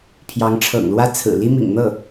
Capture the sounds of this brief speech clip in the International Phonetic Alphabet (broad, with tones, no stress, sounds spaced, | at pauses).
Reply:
pʰ j ɑ˧˥ ŋ ʈ͡ʂʰ ɤ̰˨˩ ŋ l w ä˥˩ t͡sʰ ɹ̩˨˩ l i˥ m ḭ˨˩ ŋ n̪ ɤ˥˩